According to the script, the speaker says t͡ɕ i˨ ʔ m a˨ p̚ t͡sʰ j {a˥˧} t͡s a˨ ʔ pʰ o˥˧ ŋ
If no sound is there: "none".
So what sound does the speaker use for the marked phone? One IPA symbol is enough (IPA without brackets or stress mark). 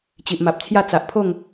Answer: a˥˧